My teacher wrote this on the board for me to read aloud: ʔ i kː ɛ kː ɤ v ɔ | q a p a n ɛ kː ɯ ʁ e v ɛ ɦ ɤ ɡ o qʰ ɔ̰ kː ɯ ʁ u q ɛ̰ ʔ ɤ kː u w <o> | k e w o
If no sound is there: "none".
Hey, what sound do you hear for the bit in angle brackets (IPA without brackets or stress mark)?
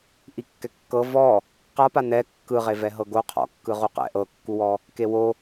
ɔ